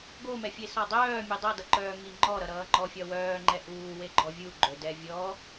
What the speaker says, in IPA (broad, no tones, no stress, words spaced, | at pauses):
ɡomɛfʲe sɒdˤœː mʲɛdˤʌdʌǃœː ŋiŋ͡ǃɔ ɾʌɾʌːŋ͡ǃɔ fʲɒwœːŋ͡ǃɛ ʔuː weɡ͡ǃɔvʲu ɡ͡ǃɵdɛ vʲɔ